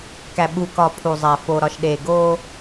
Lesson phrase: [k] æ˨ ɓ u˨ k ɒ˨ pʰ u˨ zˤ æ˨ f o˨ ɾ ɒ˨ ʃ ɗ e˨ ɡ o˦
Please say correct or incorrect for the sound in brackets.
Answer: correct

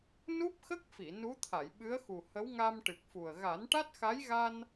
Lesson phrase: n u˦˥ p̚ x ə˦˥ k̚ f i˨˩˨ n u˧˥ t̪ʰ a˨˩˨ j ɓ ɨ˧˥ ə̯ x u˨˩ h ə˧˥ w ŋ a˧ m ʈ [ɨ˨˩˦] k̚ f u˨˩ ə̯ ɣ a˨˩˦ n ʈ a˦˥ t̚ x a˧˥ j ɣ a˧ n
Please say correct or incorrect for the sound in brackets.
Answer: incorrect: ɨ˨˩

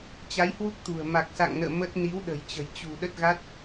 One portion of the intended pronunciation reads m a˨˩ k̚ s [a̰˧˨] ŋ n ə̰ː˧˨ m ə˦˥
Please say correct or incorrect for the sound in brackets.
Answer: correct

